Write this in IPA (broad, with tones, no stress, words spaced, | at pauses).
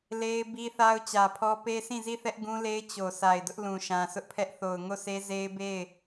le˦ɪ̯ bi˦θa˦ʊ̯ t͡ɕä˨pʰɔ˦ pe˦sĩ˦˨zi˦˨θɛ˦ʔ ɡũ˦le˦ɪ̯ t͡ɕo˨ sa˨ɪ̯dʊ˦ʔ lũ˨ʃã˨sʊ˦ʔpʰɛ˦ʔ θo˨ʊ̯ ŋo˦˨sʰe˦ze˦ɪ̯ be˦˨ɪ̯